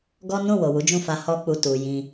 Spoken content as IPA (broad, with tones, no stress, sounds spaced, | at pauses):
ɡ ɔ˦ n ũ˦˨ w o˨ w u˨˦ d͡ʒ ũ˦˨ f a˧ h ɔ˦ k͡p u˧ t u˨ j ĩ˧